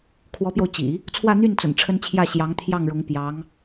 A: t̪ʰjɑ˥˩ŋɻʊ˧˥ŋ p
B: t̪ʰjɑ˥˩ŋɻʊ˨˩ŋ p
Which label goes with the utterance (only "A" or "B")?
A